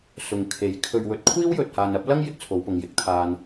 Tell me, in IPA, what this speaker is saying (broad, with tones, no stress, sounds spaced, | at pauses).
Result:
s ʊ˨ ŋ kʰ e˨˥ j kʰ ɵ˧ ɥ w ɵ˧ t̚ kʷʰ iː˥ w j ɵ˨ t̚ h aː˨ n ɐ˨˥ p̚ l ɐ˥ ŋ j ɪ˥ k̚ t͡sʰ o˨˧ w p ʊ˨ ŋ j ɪ˧ k̚ t̪ʰ aː˨ n